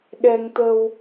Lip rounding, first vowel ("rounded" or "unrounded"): unrounded